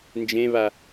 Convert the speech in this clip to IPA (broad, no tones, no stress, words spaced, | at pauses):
nd͡ʒẽβa